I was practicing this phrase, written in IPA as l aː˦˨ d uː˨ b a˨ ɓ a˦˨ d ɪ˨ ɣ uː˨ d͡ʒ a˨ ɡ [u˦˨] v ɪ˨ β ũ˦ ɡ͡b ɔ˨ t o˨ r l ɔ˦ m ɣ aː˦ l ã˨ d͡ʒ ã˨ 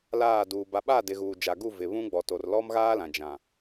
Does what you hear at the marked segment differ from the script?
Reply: no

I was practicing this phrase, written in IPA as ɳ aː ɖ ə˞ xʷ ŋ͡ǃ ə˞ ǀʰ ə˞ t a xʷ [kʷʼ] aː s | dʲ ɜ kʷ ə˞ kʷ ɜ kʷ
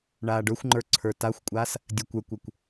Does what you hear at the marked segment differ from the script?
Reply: no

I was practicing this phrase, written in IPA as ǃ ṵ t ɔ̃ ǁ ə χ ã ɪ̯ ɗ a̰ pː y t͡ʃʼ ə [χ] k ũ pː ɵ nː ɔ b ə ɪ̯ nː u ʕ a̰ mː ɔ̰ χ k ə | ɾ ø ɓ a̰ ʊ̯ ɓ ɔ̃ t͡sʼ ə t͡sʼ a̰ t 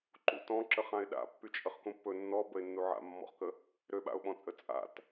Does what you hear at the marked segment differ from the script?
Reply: no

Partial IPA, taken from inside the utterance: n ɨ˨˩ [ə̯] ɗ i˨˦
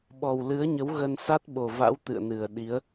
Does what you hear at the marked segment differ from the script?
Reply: no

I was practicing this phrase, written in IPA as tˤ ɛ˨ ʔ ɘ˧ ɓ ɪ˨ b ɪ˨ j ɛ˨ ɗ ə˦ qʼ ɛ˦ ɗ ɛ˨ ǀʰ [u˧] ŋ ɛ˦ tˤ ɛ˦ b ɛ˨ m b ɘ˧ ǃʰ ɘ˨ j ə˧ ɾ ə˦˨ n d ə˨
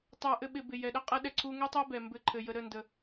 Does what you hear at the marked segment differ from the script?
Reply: no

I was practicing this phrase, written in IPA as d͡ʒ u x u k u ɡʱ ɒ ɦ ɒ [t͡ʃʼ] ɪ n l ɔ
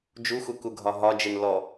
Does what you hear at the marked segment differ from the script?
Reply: yes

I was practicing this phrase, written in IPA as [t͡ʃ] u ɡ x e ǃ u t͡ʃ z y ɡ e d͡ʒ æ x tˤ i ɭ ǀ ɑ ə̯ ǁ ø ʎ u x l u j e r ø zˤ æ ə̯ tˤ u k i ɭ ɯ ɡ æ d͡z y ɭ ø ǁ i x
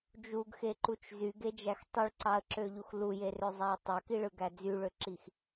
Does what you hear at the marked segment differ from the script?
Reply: yes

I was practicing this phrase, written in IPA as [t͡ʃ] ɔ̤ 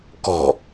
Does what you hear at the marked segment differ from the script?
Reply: yes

